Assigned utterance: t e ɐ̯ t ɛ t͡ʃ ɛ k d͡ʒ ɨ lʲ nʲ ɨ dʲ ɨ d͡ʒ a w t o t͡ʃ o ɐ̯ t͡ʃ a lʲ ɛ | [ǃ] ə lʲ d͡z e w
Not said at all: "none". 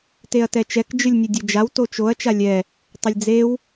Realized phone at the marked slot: tˤ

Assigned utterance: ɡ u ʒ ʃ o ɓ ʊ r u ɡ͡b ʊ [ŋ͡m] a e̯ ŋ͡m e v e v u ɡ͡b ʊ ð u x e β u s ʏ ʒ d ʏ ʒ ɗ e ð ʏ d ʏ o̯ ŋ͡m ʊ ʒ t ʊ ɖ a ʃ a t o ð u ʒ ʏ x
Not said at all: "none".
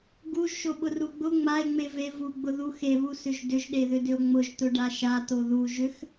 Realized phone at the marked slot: ŋ͡m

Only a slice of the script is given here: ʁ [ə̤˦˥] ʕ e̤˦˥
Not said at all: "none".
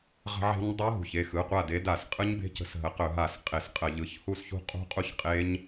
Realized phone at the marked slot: ə̤˦˥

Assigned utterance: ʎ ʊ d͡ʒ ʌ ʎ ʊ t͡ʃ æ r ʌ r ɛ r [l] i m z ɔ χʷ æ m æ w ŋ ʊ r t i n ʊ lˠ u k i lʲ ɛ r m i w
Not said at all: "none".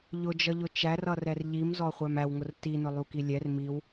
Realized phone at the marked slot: ʎ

